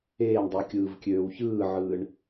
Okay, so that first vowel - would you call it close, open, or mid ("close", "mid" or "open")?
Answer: mid